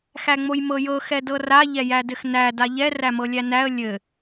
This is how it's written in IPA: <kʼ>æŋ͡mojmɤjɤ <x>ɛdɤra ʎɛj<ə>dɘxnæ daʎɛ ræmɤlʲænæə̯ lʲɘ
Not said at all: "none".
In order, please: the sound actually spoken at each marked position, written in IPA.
x, x, æ

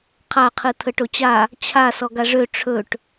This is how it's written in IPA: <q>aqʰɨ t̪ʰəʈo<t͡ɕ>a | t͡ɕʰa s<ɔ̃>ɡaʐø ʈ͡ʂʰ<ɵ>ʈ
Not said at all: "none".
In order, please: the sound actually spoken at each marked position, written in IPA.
qʰ, t͡ɕ, ɔ, ɵ

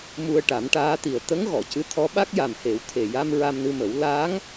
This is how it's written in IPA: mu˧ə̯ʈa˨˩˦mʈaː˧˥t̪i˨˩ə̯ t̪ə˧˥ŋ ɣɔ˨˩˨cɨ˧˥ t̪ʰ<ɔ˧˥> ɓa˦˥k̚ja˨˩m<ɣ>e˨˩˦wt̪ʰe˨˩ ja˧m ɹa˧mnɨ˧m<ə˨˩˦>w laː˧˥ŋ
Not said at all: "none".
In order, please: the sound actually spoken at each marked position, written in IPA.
ɔ˧˥, h, ə˨˩˦

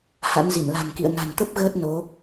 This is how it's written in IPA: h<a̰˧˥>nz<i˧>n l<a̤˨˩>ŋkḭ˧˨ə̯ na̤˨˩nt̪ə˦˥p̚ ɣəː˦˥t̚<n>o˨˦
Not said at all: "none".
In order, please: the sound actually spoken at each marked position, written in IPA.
a̰˧˥, i˧˩, a̤˨˩, n

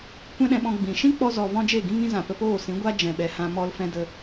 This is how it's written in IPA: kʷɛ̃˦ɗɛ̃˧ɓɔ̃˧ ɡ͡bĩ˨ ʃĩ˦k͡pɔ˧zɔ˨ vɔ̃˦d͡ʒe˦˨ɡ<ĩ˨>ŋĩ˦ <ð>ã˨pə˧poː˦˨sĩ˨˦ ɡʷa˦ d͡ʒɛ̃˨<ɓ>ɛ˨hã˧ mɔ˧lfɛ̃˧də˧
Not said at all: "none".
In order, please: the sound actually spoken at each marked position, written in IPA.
ĩ˦, z, ɓ

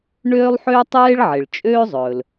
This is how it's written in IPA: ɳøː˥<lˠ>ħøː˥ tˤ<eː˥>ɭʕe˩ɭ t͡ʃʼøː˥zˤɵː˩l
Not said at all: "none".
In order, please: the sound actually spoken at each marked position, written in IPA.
lˠ, eː˥

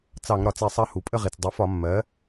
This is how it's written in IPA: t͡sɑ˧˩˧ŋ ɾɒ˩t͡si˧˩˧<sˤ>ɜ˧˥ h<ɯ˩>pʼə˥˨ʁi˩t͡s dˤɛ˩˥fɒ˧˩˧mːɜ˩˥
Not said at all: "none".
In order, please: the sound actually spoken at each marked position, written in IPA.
sˤ, u˩

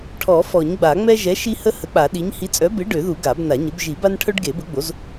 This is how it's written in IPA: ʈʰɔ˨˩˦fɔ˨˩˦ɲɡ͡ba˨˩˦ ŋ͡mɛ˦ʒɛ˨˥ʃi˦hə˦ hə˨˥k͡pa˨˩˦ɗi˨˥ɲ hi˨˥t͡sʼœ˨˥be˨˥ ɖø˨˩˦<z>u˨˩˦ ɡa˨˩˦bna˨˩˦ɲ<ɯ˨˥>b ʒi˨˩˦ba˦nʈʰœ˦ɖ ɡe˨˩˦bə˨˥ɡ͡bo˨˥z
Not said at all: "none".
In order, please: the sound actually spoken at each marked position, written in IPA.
ð, ə˨˥

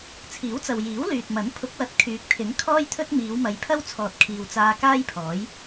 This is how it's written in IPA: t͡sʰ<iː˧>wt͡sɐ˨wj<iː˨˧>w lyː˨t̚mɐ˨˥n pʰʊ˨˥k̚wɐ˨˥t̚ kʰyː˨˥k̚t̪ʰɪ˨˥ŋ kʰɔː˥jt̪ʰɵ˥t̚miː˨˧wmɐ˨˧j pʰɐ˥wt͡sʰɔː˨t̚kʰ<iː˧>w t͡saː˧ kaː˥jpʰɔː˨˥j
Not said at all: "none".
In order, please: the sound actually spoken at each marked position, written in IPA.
iː˨˥, iː˨˥, iː˨

